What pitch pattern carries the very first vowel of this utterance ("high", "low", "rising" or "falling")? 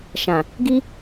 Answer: low